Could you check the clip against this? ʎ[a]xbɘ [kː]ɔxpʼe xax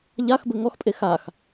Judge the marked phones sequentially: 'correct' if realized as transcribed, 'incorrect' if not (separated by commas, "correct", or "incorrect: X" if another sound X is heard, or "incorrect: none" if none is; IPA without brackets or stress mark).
correct, incorrect: ŋ